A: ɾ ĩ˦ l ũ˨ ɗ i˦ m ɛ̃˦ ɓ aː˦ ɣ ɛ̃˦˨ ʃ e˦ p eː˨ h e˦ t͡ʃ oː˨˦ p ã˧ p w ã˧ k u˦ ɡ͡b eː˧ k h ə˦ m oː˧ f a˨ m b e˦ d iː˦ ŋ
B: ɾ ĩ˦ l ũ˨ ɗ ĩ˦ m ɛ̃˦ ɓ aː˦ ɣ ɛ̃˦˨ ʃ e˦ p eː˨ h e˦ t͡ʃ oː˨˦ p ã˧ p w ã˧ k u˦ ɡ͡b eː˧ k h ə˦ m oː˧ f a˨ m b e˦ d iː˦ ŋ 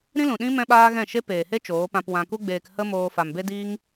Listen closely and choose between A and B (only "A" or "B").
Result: B